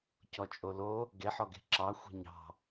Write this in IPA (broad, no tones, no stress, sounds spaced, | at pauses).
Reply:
c ɔ t͡ʃʼ o l o | ɡ e ħ ɔ ɡ e̤ ǁ ɑ xʷ e̤ ɲ ɑ̤